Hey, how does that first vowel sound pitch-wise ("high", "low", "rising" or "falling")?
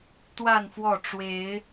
falling